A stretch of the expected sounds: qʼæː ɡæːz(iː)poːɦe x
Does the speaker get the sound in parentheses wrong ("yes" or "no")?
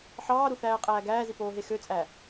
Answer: yes